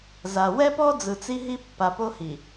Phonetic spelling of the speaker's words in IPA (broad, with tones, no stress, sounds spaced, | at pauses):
z a˨ w ɛ˦ p ɔ˦ d͡z ɯ˨ t͡s i˦ ɦ i˦ pː a˨ p o˦ h i˨